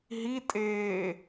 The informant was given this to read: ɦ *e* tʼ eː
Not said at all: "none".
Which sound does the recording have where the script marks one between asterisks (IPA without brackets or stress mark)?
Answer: i